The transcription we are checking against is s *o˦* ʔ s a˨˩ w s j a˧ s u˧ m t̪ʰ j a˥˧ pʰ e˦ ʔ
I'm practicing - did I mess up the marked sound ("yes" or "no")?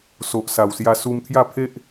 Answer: yes